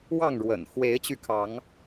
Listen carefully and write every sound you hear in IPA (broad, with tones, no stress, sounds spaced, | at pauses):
w ɑ˥˨ ŋ ɻ w ə̰˨˩ n x w e˨˦ ɪ̯ t͡ɕ y˧ kʰ ɑ˨˦ ŋ